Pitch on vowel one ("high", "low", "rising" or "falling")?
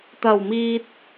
low